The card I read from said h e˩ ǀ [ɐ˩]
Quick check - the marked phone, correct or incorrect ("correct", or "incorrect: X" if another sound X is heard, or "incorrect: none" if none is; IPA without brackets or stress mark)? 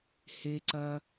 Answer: correct